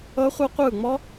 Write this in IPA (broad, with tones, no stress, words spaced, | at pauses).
ɤ˦˥χʷɤ˦˥qʷɯ˦˨ŋ͡mɔ˦˥